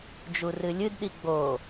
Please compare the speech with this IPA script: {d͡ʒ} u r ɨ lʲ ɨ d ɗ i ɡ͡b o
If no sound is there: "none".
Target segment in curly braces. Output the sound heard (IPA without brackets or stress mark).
d͡ʒ